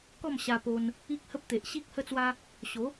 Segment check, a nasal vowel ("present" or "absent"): absent